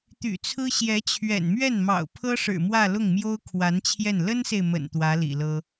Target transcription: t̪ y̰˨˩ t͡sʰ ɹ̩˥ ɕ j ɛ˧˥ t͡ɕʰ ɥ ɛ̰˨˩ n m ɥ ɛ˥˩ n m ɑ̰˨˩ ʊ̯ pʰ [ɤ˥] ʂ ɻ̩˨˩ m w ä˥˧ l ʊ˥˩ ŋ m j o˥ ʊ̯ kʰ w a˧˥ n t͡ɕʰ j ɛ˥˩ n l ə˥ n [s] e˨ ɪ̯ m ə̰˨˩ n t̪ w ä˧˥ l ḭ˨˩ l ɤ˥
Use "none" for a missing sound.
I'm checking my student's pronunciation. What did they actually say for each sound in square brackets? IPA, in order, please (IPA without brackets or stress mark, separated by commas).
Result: ɤ˥, s